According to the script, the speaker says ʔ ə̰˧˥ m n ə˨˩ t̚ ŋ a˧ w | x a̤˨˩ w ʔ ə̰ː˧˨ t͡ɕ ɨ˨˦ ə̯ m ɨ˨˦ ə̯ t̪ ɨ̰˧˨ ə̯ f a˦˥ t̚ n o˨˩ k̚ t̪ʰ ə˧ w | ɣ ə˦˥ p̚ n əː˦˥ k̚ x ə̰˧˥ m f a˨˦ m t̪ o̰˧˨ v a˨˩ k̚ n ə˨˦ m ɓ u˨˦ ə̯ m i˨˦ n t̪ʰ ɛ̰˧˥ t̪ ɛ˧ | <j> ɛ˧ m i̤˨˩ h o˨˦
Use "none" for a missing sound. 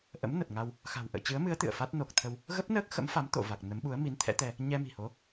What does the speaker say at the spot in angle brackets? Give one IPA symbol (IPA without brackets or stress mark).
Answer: ɲ